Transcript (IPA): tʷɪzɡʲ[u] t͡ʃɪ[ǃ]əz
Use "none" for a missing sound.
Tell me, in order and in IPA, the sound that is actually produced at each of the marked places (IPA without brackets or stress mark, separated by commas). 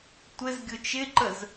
ʊ, ǃ